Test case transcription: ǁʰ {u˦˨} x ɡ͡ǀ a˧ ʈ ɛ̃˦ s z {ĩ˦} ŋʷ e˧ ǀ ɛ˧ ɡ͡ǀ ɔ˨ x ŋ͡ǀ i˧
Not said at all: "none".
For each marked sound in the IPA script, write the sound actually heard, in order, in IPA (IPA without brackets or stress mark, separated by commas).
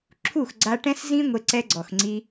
u˦˨, ĩ˦